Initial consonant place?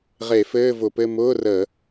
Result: uvular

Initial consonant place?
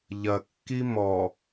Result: palatal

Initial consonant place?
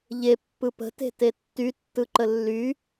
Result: palatal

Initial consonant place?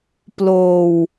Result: labial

